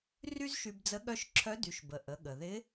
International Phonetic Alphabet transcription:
r y˥ z ʃ y˧ b d͡z ə˧˥ ɠ œ˧˥ ʃ ǁʰ œ˧˥ d y˩˧ ʃ b ə˩ ʔ ə˩˧ ɠ ə˩ ð ɪ˧˥

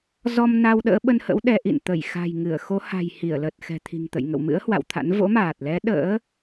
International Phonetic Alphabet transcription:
z ɔ˧ m n a˧ w ɗ ə̰ː˧˥ ɓ ə˧ n h ə̰˧˥ w ɗ ɛ˨˦ ʔ ḭ˧˨ n t̪ ə˧˩ j x a̤˨˩ j ŋ ɨ˧˩ ə̯ x o˨˦ h a̤˨˩ j h i˧˩ ə̯ l ə˨˩ t̚ x ɛ̤˨˩ t̪ʰ i̤˨˩ ŋ t̪ ə̰˧˨ j ŋ ə̰˧˨ w m ɨ̰˧˥ ə̯ h w a̰˧˨ w t̪ʰ a̰˧˥ n v o̰˧˥ m aː˨˩ t̚ l ɛ˨˦ ɗ ə̰ː˧˥

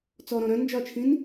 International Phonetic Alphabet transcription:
t͡s ɔ ɾ ɔ̃ ɾ œ̃ n d͡ʒ ɒ t͡ʃʰ ĩ n

